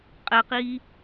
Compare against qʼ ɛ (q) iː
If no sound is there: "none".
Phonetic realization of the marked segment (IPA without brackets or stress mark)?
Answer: q